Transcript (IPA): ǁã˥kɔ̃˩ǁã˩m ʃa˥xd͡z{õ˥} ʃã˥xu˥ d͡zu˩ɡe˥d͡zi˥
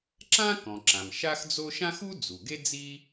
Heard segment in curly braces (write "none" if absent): o˥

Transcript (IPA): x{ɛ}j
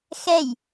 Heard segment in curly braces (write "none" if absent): ɛ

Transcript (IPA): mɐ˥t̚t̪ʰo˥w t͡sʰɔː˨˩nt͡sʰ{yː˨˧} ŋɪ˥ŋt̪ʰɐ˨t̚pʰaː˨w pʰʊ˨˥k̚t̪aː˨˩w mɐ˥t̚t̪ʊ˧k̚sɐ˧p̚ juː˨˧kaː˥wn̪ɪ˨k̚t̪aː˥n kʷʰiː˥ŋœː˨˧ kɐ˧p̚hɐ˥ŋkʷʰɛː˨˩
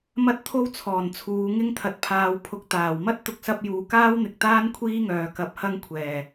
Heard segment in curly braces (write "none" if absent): uː˨˧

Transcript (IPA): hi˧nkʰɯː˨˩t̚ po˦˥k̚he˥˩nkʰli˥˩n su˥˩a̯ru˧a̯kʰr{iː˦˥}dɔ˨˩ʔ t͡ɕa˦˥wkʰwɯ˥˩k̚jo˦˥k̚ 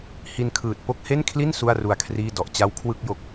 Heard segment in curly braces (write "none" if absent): iː˥˩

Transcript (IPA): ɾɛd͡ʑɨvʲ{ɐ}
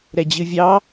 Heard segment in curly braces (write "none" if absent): ɑ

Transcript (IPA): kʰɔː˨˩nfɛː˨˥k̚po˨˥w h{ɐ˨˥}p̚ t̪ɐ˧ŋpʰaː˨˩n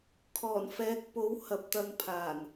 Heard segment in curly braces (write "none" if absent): ɐ˨˥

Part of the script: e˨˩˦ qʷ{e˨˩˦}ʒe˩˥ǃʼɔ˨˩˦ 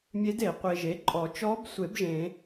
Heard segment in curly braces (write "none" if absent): e˨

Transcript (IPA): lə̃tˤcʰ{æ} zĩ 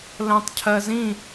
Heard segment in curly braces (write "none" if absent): ɜ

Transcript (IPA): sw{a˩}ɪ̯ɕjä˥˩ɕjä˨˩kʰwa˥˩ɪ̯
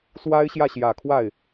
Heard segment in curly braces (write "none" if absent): a˥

